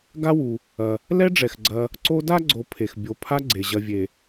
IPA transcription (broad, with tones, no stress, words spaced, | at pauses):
ɡa˦wu˩ | ɐ˩ | lɛ˦ɖ͡ʐɛ˩x ɡ͡ǀɐ˨ | ǀo˦da˥ɡ͡ǀo˨ pʰe˩x bʲo˨pʰa˦ ɡ͡ǀe˩ʑɐ˨vʲe˩